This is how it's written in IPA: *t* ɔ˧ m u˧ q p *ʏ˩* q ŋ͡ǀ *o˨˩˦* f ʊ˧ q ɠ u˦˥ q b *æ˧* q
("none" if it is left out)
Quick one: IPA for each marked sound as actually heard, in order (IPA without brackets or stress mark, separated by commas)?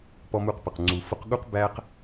p, ə˩, u˨˩˦, æ˧